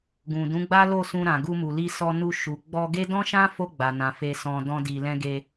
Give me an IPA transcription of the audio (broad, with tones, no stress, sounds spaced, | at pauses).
ɡ ũ˨ d ũ˨˦ ɡ͡b a˦ l o˦˨ s ũ˧ ɾ ã˨ ɡ u˧ m u˨ l i˧ s ɔ˧ n u˧ ʃ u˨ ɡ͡b ɔ˧ ɡ e˦ d ɔ̃˦ ʃ ã˦ f o˧ ɡ͡b a˨ n ã˨ f e˨ s ɔ̃˨ d ɔ̃˧ d i˨ l ɛ̃˧ ɡ e˧